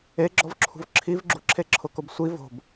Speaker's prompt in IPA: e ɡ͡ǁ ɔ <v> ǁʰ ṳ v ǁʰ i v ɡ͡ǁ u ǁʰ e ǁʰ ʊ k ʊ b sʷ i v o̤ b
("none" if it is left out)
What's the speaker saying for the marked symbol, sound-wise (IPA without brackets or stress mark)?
v